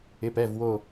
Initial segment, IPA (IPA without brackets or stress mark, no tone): ɪ